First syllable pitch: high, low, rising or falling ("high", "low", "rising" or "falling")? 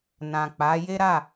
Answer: low